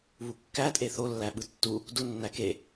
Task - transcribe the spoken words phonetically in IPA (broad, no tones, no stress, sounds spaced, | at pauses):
β u kː æ tʼ e θ o lː æ ɓ ɯ tː u | d u nː æ k e